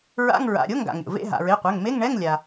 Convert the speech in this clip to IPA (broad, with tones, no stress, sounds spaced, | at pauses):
ɹ a̰˧˥˧ ŋ ɹ a̰˩˧˩ ɾʲ o˧˥˧ ŋ ɡ a̰˩ ŋ ɾʲ o̰˩ v ḛ˧˥˧ ɦ a̰˩ ɹ e˩˧˩ qʷ ɛ˩˧˩ ŋ m e˧˥˧ ŋ ɳ ɛ˧˥˧ ŋ lʲ a˩